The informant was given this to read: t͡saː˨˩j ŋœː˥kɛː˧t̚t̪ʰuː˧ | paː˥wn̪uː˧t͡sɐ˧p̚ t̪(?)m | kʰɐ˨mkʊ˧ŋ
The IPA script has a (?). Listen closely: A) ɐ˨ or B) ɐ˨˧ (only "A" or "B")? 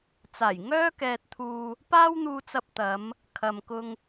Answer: B